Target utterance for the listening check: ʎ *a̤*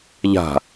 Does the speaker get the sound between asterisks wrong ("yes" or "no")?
no